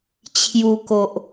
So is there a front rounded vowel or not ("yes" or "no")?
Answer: no